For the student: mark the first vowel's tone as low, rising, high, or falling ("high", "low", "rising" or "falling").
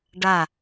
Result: falling